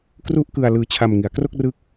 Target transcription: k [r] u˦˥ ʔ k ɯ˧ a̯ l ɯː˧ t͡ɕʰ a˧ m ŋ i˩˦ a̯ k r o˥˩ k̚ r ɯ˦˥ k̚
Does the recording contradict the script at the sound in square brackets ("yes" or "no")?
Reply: no